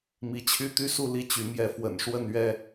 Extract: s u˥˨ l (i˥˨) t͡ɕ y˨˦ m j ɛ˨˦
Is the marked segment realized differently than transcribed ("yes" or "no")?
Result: no